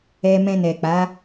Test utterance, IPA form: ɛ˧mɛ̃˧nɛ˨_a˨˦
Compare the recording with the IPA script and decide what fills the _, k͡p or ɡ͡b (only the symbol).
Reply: k͡p